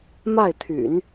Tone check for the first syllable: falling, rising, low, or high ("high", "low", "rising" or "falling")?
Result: falling